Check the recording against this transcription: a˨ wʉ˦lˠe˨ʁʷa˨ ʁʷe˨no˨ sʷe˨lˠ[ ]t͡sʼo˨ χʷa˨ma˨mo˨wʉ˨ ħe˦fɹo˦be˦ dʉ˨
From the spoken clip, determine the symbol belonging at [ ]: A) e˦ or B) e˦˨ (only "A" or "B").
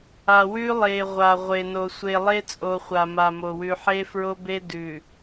A